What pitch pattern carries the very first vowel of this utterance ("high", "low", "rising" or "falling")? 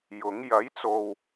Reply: rising